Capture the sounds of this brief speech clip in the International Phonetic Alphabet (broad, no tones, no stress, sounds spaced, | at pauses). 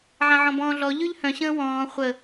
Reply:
ʕ ã ʕ ɔ̃ b ɔ̃ː ɮ ɔ ʎ ʉ ʎ h œ̃ ɕ ə̃ː w ɔ̃ː χʷ ə